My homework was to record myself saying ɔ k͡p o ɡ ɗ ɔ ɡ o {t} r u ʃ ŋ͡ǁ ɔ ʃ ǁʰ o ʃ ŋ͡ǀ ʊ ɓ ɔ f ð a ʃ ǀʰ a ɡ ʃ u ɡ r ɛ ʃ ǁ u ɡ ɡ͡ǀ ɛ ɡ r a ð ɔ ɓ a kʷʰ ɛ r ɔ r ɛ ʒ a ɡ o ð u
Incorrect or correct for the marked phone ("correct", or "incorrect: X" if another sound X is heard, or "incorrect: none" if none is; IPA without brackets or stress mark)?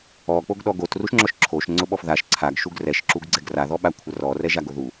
correct